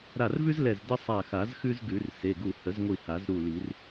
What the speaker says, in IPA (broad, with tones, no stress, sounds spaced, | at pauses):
ɾ a˧˩ r v ʉ˥ z l ɛ˧˩ z d ə˥ sˤ a˧˩ x a˨˩˦ z x ʉ˥ z ɡ ʉ˨˩˦ r s e˩˧˩ ɡ u˧˩ h ə˨˩˦ z ŋʷ i˧˩ h a˨˩˦ z ɾ u˧˩ l i˨˩˦ r